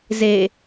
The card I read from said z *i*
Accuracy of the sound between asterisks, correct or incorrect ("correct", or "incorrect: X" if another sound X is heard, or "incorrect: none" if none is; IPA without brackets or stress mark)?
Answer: incorrect: e